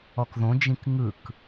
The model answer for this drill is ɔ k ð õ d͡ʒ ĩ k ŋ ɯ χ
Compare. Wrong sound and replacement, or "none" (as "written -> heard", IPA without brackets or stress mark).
χ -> k